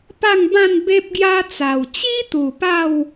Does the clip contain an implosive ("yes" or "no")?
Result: no